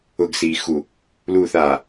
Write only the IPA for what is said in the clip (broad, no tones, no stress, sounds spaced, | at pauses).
ʊ ɡ s iː x u | l uː θ aː